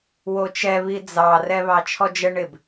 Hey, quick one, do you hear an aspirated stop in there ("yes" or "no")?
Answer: yes